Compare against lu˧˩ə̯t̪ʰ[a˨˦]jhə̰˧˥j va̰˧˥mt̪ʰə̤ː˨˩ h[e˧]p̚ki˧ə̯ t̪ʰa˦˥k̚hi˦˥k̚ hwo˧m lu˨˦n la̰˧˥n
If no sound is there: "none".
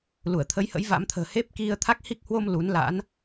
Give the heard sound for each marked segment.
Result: ə˨˦, e˦˥

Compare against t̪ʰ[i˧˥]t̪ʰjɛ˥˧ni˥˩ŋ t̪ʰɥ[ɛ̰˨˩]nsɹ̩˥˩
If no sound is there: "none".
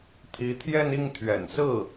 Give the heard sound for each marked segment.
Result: i˧˥, ɛ̰˨˩

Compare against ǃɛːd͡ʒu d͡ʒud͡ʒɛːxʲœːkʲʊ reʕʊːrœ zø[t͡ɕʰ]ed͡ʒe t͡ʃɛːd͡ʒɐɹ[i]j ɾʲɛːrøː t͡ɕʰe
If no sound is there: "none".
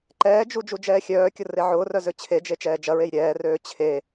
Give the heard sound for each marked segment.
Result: t͡ɕʰ, e

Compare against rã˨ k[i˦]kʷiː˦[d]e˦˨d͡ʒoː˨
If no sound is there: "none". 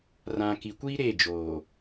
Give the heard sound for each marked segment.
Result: i˨, ɾ

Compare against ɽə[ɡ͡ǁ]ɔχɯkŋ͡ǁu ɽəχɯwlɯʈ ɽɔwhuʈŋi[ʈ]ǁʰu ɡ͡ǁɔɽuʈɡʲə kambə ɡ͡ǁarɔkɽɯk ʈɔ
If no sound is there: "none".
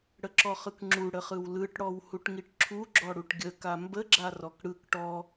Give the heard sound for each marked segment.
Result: ǁ, ʈ

